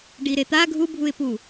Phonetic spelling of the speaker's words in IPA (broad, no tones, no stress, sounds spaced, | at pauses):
ɖ i ɾ e t̪ a ɡʱ u bʱ u ɪ̯ p u